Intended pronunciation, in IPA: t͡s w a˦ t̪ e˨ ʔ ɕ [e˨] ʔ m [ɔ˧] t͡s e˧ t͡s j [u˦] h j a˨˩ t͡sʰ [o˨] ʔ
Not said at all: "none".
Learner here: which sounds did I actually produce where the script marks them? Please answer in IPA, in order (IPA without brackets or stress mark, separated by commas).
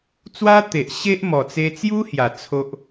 e˦, ɔ˨˩, u˦, o˦